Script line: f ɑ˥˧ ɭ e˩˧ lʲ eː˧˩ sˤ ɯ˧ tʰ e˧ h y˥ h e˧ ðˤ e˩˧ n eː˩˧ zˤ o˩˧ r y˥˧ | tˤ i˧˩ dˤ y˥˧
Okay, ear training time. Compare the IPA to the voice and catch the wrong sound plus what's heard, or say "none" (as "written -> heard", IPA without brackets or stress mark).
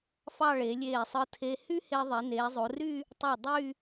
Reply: i˧˩ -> y˧˩